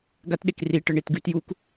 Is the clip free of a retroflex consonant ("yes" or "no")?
no